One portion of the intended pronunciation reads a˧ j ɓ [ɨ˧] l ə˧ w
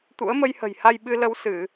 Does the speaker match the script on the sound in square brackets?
yes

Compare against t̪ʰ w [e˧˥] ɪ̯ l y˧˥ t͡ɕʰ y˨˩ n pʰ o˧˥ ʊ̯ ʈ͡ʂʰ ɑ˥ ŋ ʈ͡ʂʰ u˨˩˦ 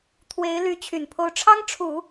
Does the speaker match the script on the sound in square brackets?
yes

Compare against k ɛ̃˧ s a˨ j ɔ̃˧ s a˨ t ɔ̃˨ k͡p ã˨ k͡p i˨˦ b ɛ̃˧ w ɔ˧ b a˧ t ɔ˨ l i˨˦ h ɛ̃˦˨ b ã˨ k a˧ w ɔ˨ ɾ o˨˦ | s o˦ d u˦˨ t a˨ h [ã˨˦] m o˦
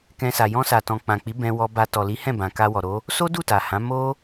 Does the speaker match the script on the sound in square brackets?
yes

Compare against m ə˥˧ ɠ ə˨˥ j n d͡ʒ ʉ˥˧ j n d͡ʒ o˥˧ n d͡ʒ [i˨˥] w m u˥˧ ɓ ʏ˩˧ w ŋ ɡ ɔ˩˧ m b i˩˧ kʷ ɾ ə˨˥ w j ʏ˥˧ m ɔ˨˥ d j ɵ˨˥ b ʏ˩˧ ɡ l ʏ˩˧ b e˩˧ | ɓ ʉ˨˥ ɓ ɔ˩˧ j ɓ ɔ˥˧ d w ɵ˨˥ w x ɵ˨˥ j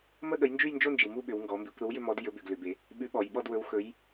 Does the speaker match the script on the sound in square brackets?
no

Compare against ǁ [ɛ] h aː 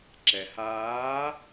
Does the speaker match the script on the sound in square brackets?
yes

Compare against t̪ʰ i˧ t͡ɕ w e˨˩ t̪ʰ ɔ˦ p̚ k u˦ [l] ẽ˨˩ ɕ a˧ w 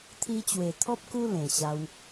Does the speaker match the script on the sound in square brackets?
yes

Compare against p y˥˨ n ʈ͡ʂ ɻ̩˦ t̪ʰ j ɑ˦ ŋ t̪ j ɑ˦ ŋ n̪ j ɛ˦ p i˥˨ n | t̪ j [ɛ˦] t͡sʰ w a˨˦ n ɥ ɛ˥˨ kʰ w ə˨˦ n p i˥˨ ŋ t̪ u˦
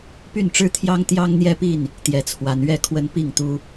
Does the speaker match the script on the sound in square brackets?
no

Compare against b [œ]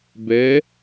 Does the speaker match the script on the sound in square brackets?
no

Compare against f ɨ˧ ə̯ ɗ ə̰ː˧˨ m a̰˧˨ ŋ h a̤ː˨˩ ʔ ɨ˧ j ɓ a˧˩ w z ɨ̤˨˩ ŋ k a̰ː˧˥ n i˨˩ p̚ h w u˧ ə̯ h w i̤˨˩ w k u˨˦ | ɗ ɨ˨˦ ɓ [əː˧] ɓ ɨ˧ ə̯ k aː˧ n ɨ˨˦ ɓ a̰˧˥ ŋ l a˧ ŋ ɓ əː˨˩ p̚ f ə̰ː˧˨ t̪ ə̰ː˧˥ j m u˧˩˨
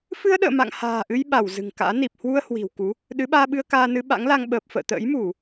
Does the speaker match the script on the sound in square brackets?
no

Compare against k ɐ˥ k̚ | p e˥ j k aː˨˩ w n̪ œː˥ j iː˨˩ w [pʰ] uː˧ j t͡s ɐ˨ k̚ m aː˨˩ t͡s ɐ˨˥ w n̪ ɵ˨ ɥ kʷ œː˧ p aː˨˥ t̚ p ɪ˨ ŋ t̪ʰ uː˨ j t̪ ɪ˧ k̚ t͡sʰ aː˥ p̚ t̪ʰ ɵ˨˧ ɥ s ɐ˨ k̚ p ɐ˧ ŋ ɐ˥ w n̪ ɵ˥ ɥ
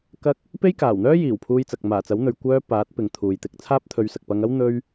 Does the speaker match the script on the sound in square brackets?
yes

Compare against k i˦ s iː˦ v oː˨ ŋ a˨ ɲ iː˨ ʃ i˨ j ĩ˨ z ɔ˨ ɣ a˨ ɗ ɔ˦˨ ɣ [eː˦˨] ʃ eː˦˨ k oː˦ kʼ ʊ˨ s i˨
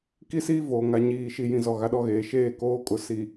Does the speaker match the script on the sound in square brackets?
no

